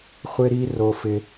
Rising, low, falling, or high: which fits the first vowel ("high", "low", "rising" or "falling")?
high